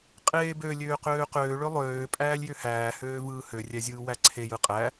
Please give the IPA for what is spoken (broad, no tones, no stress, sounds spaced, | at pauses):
qʼ eː b ø lʲ øː q øː q øː ɭ ø lˠ øː pʼ æː lʲ j ø h æː h øː v ɯː h ø rʲ æ zʲ ɯː w æ ǀʰ e j ɯ qʼ æ